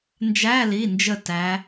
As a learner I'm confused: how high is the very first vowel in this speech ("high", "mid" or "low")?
low